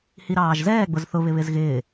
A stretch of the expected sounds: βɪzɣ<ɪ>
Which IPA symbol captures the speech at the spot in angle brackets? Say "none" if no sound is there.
ɪː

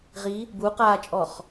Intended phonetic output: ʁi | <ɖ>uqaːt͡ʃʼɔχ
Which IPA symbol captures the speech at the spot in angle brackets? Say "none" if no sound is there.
b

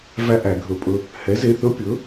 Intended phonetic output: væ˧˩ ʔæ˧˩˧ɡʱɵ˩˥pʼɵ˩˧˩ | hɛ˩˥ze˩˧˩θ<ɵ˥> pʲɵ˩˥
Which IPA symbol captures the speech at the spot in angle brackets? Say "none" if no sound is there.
ɵ˥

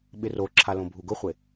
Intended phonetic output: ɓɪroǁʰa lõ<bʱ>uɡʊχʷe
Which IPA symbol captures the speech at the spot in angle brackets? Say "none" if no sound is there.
bʱ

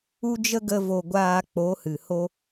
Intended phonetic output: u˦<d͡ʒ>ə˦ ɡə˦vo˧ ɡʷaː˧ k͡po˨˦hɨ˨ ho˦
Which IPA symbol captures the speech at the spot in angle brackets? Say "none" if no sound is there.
d͡ʒ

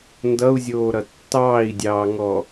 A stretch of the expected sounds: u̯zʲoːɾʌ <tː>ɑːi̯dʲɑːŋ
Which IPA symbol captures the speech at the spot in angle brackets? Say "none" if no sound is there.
tː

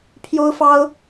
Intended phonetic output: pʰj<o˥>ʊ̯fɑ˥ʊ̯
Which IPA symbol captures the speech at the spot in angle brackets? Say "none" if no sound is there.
o˥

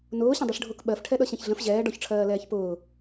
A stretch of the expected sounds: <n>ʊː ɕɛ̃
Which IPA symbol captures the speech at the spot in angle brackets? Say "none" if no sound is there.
n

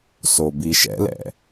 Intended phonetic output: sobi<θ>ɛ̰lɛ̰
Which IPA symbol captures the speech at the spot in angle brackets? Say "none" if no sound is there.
ʃ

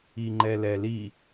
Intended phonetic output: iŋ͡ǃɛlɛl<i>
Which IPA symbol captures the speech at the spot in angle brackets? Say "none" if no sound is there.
i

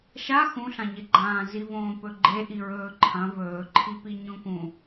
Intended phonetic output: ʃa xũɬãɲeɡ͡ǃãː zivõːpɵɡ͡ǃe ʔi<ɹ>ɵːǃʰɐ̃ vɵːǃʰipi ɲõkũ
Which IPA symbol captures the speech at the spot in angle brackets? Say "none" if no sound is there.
ɹ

